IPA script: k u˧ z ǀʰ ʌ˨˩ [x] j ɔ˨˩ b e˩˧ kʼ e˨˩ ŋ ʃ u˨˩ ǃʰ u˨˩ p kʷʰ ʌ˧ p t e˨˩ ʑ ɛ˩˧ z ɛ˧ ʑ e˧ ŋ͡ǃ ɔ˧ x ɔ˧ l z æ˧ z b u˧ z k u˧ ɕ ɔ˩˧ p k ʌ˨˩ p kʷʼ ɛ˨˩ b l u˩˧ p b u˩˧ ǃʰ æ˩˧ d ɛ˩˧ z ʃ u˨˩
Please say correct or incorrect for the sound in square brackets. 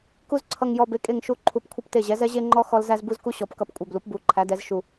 incorrect